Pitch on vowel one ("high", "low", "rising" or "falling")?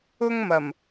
high